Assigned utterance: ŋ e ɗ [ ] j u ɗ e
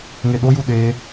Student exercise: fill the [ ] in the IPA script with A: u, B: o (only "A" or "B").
B